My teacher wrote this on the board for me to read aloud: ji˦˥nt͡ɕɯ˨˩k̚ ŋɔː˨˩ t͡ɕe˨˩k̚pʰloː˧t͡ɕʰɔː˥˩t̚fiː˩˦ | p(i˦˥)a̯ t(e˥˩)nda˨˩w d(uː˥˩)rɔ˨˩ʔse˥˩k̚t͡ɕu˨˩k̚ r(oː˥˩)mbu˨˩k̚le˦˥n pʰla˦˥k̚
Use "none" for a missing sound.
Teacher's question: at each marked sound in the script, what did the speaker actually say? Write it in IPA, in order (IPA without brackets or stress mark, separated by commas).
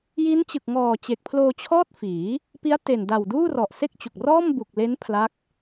i˦˥, e˨˩, uː˥˩, ɔː˥˩